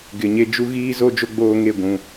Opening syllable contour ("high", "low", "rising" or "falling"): low